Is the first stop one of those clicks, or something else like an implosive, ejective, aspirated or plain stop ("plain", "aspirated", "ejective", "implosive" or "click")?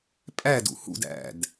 ejective